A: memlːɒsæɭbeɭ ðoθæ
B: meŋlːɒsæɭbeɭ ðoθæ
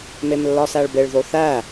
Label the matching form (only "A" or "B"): A